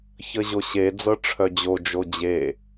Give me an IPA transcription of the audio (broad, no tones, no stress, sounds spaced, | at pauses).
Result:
ç ə ʑ o ɕ e d͡z ɤ ʈ͡ʂʰ œ d͡ʑ o d͡ʒ o d͡ʑ e